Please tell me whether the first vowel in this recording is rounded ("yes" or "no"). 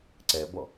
no